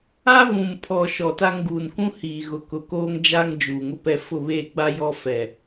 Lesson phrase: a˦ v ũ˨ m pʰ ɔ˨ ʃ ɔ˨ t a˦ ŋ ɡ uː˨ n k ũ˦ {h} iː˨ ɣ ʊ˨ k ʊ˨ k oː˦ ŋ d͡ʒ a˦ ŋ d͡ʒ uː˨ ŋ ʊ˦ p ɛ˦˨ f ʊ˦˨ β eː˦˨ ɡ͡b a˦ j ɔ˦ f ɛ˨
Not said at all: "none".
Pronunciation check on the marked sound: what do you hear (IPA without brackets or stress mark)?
h